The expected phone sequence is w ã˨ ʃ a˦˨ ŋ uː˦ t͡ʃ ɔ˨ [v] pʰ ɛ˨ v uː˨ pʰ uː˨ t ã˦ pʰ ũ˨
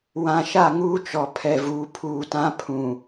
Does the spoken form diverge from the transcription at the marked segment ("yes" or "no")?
yes